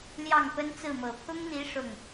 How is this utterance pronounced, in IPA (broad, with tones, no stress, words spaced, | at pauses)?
ljɑ˥˩ŋpə˥nt͡sɹ̩˥˩mɤ˨˩ pʰʊ˥ŋn̪i˧˥ ʂʊ˥˩ŋ